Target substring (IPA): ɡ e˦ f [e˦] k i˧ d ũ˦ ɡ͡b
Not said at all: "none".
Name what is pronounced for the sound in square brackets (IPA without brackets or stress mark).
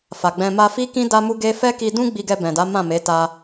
ɛ˦